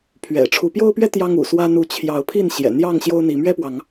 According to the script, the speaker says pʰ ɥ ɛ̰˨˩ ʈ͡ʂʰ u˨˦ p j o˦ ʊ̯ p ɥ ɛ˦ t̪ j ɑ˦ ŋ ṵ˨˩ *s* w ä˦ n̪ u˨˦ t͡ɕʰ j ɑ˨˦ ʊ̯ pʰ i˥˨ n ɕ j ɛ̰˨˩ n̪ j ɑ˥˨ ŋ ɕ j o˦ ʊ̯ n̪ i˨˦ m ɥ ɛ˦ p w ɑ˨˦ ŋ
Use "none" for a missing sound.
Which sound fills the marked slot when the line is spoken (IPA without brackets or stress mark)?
s